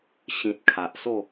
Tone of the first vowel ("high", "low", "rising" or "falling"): low